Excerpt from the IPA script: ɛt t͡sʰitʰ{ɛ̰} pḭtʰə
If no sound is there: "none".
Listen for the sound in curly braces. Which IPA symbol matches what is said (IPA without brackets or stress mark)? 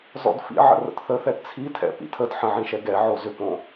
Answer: ɛ̰